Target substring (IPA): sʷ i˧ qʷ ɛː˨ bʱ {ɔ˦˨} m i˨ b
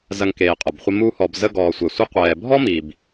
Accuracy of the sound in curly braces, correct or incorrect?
incorrect